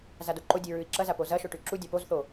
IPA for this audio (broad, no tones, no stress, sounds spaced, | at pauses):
z a d o ǃ o dʲ ɨ ɹ ʉ i̯ ǁ ɐ z a p o z ɐ ʃ o ʈ ʉ ǁ u dʲ a p o z θ o